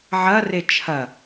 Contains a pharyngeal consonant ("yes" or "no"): yes